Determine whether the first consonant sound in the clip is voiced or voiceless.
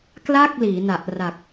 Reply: voiceless